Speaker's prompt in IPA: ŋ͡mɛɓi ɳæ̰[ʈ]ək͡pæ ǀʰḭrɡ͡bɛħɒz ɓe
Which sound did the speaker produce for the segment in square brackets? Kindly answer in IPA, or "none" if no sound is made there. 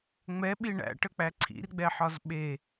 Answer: ʈ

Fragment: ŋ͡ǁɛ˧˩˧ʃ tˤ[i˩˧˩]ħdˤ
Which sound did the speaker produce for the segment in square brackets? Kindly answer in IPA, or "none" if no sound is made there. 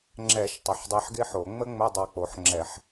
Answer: ɪ˩˧˩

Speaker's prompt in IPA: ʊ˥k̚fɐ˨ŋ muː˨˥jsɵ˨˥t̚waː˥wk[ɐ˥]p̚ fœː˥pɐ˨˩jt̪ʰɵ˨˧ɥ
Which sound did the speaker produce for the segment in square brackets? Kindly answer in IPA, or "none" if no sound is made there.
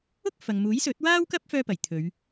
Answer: ɐ˥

